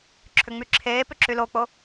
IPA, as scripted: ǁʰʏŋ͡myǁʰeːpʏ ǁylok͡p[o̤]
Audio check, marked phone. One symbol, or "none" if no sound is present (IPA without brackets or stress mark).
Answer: o